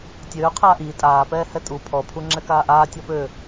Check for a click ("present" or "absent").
present